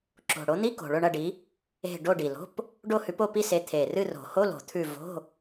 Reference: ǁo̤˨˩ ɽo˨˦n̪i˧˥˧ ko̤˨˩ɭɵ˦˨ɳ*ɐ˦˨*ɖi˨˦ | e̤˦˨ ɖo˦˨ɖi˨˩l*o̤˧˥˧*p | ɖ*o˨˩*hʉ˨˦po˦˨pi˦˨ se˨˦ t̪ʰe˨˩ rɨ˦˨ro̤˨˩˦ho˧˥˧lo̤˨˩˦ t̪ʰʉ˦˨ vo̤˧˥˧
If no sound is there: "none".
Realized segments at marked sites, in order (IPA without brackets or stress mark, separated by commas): ɐ˦˨, o̤˧˥˧, o˦˨